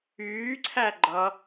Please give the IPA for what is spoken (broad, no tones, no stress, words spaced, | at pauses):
yːǀʰæ ɡ͡ǃʌ